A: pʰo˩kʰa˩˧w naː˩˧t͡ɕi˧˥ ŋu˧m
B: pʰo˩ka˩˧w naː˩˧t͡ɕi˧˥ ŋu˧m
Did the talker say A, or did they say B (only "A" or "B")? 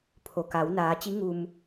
B